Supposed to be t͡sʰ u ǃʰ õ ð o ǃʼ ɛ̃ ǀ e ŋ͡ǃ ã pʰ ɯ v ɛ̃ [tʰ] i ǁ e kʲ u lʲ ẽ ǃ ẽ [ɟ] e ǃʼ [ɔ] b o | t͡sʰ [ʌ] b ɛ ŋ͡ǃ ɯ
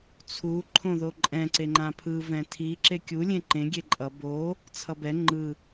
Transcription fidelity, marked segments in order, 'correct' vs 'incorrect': correct, incorrect: ɡʲ, incorrect: ʌ, correct

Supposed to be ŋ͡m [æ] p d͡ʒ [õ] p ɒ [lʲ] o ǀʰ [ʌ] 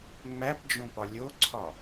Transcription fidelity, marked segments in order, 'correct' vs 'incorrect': correct, correct, correct, incorrect: ɒ

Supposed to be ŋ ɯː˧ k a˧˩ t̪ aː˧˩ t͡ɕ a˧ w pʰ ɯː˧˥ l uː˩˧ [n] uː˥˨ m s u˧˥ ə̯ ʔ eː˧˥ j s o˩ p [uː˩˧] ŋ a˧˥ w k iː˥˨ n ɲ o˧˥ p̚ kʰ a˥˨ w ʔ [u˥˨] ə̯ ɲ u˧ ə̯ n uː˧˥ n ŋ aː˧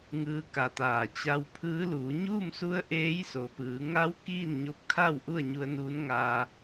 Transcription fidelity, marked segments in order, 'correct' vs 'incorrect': incorrect: ɲ, incorrect: ɯː˩˧, correct

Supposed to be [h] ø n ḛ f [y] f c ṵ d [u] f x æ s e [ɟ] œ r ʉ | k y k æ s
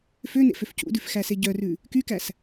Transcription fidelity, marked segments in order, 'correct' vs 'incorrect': incorrect: f, incorrect: ø, incorrect: ʉ, correct

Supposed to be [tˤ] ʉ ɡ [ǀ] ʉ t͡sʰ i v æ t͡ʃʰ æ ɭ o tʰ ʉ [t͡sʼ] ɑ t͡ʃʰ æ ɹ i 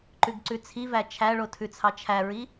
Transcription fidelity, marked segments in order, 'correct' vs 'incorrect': incorrect: ǃ, correct, incorrect: t͡sʰ

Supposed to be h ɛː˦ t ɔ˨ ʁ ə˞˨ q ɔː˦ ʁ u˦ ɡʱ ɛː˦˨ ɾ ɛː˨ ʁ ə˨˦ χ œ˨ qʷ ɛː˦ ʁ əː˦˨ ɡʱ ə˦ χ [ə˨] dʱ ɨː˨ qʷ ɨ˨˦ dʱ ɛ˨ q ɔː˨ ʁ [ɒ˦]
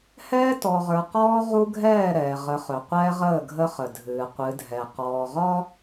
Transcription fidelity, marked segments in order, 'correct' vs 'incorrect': correct, correct

